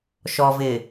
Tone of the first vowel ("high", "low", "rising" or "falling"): low